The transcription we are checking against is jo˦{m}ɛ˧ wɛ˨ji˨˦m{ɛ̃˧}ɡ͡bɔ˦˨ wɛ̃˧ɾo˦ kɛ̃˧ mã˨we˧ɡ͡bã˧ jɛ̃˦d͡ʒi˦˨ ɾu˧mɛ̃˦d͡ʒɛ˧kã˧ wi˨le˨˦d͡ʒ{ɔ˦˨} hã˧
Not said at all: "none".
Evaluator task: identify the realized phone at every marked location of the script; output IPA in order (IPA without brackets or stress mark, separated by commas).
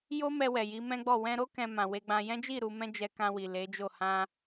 m, ɛ̃˦, o˦˨